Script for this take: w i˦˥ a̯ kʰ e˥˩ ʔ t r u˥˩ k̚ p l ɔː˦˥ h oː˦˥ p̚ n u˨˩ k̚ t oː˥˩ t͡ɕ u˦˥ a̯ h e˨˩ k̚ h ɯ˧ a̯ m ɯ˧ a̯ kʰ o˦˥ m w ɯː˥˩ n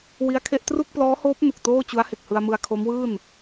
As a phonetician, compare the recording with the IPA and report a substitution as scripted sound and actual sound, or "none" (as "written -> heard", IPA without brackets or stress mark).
none